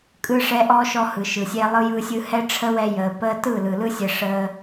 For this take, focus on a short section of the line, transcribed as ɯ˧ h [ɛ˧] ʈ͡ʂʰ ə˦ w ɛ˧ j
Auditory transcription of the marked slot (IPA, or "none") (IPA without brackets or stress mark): ɛ˦